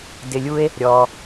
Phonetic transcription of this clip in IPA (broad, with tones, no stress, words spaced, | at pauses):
dɪ˧lʲu˦e̯ | ɾʲɔ˧